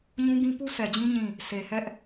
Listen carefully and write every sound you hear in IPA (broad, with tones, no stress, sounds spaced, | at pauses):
ɲ ũ˦ ɡ ĩ˦ p u˦ sʰ ɛ˨ d͡ʑ ĩ˦ ɲ ĩ˦˨ | sʰ e˨ h ɛ˦ ʔ